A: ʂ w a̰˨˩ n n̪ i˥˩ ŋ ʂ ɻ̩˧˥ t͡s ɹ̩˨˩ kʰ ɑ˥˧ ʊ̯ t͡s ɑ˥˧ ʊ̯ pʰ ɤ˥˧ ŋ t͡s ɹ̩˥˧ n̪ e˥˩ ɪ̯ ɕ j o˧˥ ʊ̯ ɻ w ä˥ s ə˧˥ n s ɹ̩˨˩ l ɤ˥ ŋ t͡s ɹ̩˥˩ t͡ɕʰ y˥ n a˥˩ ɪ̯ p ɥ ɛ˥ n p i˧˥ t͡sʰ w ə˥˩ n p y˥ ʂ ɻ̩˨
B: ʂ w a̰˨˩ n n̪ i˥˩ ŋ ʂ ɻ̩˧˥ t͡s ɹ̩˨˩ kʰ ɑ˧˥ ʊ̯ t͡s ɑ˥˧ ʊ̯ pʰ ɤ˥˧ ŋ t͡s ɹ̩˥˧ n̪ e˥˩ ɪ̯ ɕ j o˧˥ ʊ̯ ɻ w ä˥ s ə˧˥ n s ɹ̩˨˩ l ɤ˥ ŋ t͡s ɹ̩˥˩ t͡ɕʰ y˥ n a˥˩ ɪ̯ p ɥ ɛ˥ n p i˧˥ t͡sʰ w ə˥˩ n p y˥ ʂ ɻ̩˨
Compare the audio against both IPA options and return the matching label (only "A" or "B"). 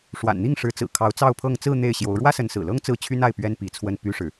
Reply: B